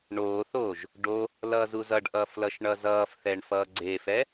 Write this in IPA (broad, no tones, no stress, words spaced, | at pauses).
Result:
ɳoːθoːʒ | ɖo | lʌːzuzʌɖʔʌːf lʌʃɳʌzʌːfθɛɳ fʌːɡ͡ǀefɛ